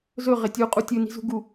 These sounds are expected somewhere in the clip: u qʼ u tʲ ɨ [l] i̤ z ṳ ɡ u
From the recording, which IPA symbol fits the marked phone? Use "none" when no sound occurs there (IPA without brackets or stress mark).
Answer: n